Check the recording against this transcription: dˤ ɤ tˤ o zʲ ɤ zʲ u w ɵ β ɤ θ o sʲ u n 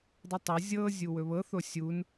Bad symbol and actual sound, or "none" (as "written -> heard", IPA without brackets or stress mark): none